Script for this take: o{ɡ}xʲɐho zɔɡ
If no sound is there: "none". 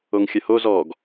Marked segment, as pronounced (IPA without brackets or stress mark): ŋ